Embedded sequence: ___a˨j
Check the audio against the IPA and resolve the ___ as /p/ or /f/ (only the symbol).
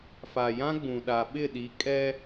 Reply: f